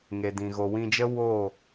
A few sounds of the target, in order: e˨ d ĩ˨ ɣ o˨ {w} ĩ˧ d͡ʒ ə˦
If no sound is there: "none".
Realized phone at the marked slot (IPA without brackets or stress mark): w